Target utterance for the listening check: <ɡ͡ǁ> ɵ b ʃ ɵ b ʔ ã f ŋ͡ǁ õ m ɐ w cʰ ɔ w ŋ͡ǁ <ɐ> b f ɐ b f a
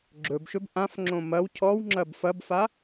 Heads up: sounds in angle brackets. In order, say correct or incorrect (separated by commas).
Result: correct, correct